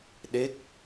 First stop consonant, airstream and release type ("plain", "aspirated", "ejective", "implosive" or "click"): implosive